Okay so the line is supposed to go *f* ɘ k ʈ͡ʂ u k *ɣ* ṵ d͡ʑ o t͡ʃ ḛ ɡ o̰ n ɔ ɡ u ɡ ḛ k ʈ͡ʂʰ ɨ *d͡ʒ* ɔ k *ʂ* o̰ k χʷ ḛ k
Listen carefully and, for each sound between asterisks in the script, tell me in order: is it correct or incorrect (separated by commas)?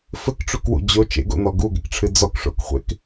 correct, incorrect, incorrect, correct